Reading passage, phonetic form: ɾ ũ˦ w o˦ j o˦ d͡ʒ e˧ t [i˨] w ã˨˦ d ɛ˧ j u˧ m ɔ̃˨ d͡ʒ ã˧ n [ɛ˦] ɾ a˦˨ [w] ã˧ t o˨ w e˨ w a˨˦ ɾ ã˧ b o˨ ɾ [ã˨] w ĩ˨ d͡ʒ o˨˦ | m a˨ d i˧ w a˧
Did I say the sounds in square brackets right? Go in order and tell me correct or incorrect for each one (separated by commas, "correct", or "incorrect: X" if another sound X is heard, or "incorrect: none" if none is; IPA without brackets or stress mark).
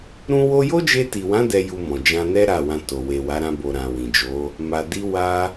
correct, correct, correct, correct